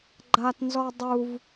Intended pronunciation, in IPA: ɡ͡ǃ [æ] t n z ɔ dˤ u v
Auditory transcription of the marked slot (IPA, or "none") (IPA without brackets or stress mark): a